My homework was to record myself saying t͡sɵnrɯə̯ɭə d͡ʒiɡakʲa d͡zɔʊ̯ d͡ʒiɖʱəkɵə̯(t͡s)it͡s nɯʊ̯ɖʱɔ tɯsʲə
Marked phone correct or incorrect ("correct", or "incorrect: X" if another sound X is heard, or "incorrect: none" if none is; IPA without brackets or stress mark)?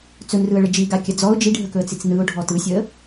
correct